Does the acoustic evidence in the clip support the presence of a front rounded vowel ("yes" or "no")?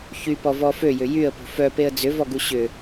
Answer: yes